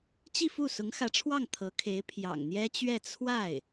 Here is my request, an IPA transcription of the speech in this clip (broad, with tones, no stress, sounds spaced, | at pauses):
t͡ɕ i˥˧ f u˥˩ s ʊ˧˥ ŋ x ä˧˥ ʈ͡ʂʰ w ɑ˥˩ ŋ t̪ʰ ɤ˧˥ kʰ e˧˥ ɪ̯ pʰ j ɑ̰˨˩ ŋ n̪ j ɛ˥ t͡ɕ ɥ ɛ˥˧ t͡sʰ w a˥˩ ɪ̯